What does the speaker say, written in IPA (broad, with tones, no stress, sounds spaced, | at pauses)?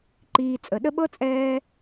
ǃ iː˨ t͡sʼ ə˩ ɗ ə˥ ɓ ɤ˥ t͡sʼ ɛː˦